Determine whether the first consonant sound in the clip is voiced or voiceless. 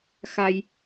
voiceless